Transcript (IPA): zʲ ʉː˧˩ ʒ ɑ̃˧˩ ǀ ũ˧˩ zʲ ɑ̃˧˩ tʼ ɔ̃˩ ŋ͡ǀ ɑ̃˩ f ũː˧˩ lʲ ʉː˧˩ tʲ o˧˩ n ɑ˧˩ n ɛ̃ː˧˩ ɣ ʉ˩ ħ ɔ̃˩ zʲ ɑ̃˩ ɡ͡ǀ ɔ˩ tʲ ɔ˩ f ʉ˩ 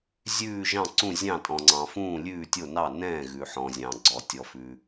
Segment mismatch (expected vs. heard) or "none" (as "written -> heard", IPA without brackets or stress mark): none